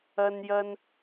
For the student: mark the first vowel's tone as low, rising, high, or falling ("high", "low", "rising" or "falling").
high